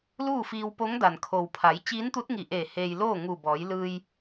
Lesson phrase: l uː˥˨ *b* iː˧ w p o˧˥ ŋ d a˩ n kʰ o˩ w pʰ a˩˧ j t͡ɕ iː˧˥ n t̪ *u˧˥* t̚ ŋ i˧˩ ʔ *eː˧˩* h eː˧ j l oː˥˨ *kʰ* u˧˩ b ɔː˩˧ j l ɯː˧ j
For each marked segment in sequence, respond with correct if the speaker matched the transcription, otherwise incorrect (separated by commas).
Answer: incorrect, correct, correct, incorrect